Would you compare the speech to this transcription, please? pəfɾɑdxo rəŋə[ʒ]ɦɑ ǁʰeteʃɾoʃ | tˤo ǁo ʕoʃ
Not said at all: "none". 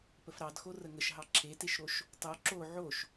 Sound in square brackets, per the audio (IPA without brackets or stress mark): ʃ